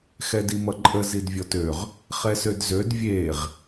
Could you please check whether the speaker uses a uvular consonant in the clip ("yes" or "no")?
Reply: yes